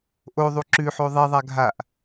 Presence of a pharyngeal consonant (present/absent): present